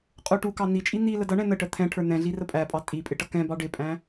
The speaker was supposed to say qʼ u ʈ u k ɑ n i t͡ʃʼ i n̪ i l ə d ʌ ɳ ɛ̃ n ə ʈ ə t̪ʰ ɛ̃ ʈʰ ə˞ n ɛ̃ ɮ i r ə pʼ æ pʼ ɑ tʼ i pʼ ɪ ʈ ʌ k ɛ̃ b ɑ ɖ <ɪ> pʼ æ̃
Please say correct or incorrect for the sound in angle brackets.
correct